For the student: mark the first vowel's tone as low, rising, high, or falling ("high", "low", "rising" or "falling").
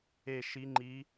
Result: falling